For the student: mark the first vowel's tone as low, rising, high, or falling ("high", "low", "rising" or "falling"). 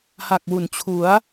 low